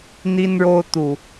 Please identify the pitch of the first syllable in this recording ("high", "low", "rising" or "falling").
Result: high